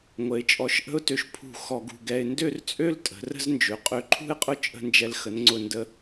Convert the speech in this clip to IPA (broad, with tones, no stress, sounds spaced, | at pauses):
ŋʷ ə˩˧ ɪ̯ t͡ʃʼ ɔ˧˩ ʃ ʔ ə̤˥ ʊ̯ t ø˧ ʃ pʰ ṳ˧˩ x ɔ˧ ɡ ṳ˧ ɡ ɛ˧ ɪ̯ n d ø˥˧ r t͡sʼ ø˥ l tʼ ə̤˩˧ r ə̤˥ z n d͡ʒ ø˩˧ qʼ ø˧ ǃʰ ṳ˥˧ ɪ̯ qʼ ʊ˥ t͡ʃʼ ə̤˥˧ n d͡ʒ ɛ˧ l x ə˩˧ n ŋ͡ǀ ʊ˧˩ n d ə˧